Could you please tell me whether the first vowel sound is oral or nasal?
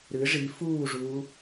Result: oral